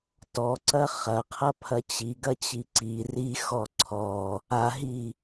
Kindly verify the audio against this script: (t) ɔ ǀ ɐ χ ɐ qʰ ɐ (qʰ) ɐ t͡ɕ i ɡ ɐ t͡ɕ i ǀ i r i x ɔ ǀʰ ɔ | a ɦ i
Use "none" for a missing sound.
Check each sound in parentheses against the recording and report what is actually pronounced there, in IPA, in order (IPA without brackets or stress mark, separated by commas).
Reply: t, pʰ